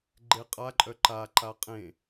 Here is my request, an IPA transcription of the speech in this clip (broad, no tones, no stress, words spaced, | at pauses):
ɡ͡ǃeqʼaǃʼœ ǃa ǃaqʼẽ